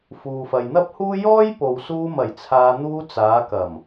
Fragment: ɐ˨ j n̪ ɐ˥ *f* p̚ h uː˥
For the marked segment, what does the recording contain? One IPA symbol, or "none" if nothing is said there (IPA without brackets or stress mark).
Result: none